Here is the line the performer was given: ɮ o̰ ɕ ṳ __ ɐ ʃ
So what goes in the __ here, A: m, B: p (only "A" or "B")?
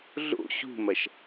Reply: A